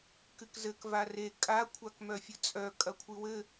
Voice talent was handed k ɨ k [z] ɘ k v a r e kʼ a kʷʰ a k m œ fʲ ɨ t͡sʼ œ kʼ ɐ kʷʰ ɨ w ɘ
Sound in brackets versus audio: correct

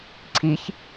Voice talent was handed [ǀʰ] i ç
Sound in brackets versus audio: correct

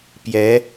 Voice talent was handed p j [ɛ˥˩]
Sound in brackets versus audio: incorrect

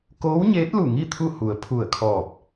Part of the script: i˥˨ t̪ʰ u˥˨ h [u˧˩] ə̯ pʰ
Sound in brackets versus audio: incorrect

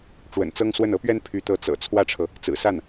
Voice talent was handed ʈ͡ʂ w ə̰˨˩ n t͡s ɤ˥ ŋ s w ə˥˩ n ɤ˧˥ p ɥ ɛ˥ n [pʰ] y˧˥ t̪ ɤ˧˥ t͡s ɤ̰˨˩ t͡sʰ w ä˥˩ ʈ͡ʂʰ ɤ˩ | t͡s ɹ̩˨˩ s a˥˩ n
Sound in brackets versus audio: correct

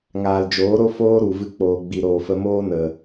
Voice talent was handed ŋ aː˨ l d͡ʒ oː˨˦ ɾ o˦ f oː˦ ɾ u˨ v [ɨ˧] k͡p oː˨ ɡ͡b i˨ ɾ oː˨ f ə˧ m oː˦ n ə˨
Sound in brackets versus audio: correct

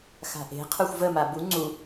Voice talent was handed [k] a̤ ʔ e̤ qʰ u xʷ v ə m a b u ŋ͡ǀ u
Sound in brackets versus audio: incorrect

